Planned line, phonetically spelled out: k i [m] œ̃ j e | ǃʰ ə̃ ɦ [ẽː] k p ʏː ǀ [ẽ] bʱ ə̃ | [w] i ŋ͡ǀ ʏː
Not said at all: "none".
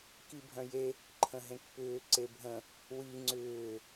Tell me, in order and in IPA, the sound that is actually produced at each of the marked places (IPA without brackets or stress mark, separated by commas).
bʱ, ẽ, e, w